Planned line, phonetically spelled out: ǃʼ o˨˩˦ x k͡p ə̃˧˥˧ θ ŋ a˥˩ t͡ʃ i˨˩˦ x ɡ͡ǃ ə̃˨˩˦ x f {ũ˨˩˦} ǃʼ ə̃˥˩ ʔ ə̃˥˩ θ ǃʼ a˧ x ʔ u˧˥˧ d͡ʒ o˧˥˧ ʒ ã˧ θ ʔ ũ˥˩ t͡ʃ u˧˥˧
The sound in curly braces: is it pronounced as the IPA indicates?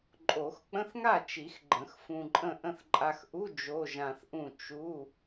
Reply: no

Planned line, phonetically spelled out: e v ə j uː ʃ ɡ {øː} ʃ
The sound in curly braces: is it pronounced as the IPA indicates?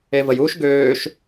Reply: yes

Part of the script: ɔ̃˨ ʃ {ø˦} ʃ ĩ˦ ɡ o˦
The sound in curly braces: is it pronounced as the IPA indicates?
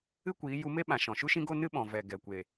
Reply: no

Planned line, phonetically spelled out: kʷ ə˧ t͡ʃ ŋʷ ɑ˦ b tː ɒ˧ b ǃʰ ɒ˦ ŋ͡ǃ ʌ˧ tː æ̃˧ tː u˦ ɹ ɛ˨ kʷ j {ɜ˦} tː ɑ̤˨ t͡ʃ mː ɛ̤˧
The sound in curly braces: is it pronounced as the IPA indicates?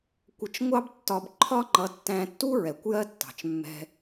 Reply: yes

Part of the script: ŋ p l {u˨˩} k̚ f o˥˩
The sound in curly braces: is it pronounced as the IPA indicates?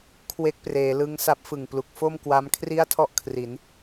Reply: yes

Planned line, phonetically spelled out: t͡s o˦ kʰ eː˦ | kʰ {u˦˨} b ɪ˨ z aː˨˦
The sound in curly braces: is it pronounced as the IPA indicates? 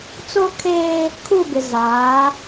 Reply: yes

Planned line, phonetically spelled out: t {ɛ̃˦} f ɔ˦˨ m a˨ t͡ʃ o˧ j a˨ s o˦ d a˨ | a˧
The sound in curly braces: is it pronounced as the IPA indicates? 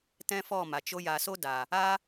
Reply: yes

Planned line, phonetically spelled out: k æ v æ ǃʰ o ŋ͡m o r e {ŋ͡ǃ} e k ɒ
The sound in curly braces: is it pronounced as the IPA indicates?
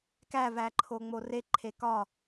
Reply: no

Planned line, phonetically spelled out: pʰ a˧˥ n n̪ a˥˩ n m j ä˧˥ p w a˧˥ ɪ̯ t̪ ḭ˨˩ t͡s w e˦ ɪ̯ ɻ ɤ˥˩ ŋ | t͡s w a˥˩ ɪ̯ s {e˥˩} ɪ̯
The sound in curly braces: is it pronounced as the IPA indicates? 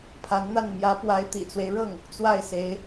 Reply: no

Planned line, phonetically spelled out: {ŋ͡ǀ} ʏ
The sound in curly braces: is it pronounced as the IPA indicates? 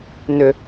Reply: no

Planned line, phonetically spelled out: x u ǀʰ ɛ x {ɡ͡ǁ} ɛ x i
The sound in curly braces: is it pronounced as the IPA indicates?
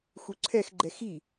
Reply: no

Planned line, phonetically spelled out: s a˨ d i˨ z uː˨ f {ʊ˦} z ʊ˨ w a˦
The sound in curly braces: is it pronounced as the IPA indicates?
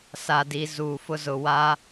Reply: yes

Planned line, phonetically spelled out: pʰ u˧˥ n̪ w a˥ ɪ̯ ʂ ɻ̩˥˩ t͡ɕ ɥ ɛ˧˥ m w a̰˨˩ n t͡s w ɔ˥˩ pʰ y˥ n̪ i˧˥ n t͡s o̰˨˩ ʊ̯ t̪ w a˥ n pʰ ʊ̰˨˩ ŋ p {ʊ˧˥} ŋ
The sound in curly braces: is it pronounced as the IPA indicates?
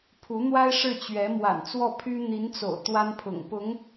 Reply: yes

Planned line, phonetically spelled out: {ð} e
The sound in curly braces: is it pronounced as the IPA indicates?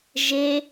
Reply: no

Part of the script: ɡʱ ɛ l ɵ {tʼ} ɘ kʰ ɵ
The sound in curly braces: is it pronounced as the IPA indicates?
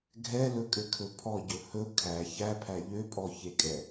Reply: no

